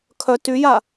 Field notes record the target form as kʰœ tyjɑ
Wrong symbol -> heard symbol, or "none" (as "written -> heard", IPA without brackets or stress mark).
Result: ɑ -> a